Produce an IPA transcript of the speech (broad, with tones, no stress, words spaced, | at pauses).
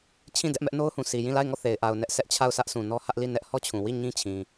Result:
t͡ɕʰĩ˦˨ dɛ˦ʔmɛ˦ʔno˦ʊ̯hũ˨ sʰi˨jĩ˦˨ la˦˨ɪ̯ŋɔ˦˨ θe˨ɪ̯ʔa˨ʊ̯ nɛ˦ʔsɛ˦ʔt͡ɕʰa˦˨ʊ̯ sä˦ʔsũ˨ nɔ˦hä˦ʔli˦˨ nɛ˦ʔ hɔ˦t͡ɕʰũ˨wi˦˨ ɲĩ˦t͡ɕʰĩ˨